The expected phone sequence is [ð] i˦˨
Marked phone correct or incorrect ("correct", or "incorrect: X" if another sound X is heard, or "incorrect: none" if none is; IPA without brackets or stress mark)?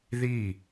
correct